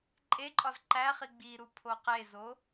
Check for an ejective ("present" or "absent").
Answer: present